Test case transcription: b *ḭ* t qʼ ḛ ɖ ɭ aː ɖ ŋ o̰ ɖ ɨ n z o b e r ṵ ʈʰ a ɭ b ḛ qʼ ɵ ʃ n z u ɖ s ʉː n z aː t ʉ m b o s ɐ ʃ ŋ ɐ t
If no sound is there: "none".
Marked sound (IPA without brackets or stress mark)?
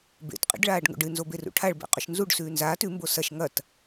ḛ